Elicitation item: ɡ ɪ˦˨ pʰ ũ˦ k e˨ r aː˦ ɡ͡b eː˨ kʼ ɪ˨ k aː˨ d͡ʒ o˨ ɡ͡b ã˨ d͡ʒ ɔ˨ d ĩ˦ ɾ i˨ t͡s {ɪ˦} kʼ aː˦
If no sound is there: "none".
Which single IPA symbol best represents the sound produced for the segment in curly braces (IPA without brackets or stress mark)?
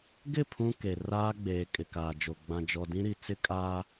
ɪ˦